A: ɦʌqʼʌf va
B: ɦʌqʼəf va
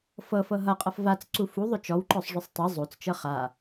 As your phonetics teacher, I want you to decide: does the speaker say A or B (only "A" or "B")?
A